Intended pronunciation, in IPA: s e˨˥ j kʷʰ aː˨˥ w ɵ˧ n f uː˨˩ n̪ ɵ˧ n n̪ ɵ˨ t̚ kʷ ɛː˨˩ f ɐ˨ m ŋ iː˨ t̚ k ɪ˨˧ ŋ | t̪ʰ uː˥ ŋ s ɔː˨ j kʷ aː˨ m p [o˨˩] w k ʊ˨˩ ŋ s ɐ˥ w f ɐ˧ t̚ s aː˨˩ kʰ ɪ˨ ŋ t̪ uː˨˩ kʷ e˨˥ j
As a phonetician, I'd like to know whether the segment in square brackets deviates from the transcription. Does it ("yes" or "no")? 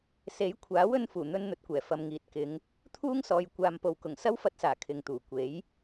yes